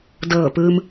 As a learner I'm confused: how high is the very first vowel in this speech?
mid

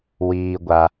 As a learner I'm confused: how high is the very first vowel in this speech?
high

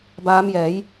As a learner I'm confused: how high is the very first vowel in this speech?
low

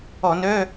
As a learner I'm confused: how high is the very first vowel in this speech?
mid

